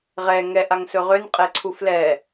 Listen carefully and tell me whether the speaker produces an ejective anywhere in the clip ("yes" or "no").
yes